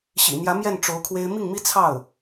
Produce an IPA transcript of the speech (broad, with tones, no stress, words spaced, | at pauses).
ɕḭ˨˩n̪jä˧˥ mjɛ˥˩n ʈ͡ʂo˧˥ʊ̯kʰwe˥ɪ̯ mi˥˩ŋmi˥ t͡sʰɑ˥˩ʊ̯